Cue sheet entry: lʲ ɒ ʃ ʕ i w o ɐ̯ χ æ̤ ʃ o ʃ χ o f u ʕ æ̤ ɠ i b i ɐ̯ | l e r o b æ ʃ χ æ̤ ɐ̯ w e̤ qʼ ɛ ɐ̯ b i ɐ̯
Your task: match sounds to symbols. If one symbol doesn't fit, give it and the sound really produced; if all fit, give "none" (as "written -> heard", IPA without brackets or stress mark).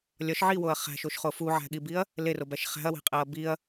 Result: ɛ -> æ